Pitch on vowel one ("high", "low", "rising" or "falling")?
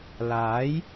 rising